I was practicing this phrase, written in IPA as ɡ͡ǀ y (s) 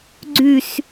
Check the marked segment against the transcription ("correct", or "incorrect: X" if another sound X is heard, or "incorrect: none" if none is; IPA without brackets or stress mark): correct